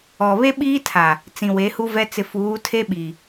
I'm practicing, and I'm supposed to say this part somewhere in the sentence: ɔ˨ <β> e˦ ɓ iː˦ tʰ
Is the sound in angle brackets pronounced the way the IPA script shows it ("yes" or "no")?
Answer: yes